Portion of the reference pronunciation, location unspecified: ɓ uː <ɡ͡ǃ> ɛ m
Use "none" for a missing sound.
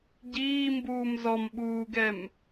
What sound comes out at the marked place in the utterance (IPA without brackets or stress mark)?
ɡ